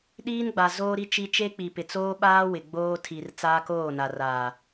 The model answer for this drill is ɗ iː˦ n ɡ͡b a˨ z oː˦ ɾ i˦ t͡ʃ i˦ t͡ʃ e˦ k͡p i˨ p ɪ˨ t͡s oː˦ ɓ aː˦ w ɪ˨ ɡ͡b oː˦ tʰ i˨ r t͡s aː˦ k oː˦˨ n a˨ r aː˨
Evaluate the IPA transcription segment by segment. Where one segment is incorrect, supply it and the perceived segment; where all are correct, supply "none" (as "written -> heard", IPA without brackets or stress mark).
none